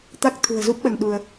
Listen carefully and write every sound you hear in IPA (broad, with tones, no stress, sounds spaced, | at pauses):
t̪ a˦˥ k̚ t̪ʰ ṳ˨˩ ə̯ z u˦˥ p̚ ɓ ə˧ n ɗ u˧ ə̯